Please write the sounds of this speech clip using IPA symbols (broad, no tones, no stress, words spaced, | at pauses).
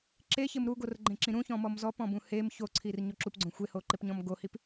ǁeçɪm ɾuɡorɡ͡ǃẽǁĩ ɾũçɔ̃mɔm zɔpɔ̃bũ hem çoǀʰirɲo ǁupɡ͡ǀõ xʷehoǃɪpɲɔ̃m ɡohip